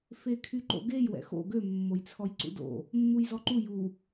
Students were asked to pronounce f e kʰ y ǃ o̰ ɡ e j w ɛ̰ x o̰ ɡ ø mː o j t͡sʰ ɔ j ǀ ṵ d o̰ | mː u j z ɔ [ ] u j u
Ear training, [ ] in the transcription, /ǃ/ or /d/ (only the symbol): ǃ